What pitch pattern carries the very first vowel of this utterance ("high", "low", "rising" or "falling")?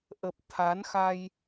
low